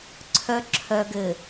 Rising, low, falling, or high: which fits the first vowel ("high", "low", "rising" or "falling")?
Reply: low